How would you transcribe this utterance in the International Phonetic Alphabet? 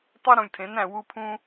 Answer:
tˤ o˦ ɾ ũ˨ lʲ tʰ ẽ˨˦ n æ̃˨ w u˦ pʰ ũ˦

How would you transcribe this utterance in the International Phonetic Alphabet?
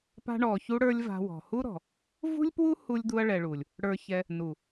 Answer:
p a̤˧ ɳ ɔ˨ ç u˧ ɽ ə˞˧ lʲ v a̤˧ w ɔ̤˨ h u˦ ɾ ɔ̤˨ | v ṳ˦ lʲ p w u˦ h u˧ lʲ d̪ u˧ ɐ̯ ɭ ɛ˨ ɭ u˨ lʲ | ɽ ə˞˧ ç ɛ˧ | n u˨

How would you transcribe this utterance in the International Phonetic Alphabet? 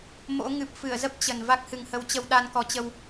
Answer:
m o̰˧˥ ŋ ɨ˨˩ p̚ f ɨ˧˩ ə̯ z ə˦˥ p̚ t͡ɕ ə˨˩ n v a˦˥ k̚ h ɨ˨˩ ŋ h ə˨˦ w t͡ɕ ə˧ w ɗ a˧ n k ɔ˨˦ t͡ɕ ə˧ w

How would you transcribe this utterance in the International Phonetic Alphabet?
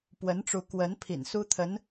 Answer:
p w ə˧˥ n ʈ͡ʂ u˧˥ k w ə˧˥ n pʰ ḭ˨˩ n s u˥ t̪ʰ ə˧˥ n

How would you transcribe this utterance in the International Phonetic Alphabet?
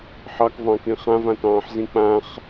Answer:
ħ ɑ k v ɑ̃ k ĩ χ ã v ã t ɑ̃ː ħ z ĩ k͡p ã χ

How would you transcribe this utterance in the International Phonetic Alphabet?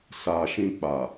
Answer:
s a˨ ʃ ĩ˧ k͡p a˨

